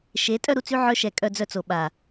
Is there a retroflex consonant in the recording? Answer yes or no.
no